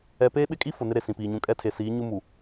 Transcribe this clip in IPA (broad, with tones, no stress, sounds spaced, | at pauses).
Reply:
ɛ˨ p eː˦ ɓ ɪ˦ kʼ i˦ f ʊ˨ n ɪ˦ ɾ e˨ s ĩ˨ p iː˨ ɲ ũ˨ kʼ ɛ˦ tʰ e˨ s iː˨˦ ɲ u˦ m u˨